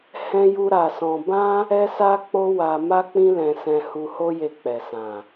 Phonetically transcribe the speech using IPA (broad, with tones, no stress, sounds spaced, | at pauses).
h ɛ̃˦ j u˦ ɾ a˧ s ɔ̃˧ b ã˦ | ɛ˦ s a˦ k͡p o˦ w a˧ m a˦ k͡p ĩ˦ l ɛ̃˧ s ɛ̃˧ h u˧ h o˦ j e˧ k͡p ɛ˨ s ã˨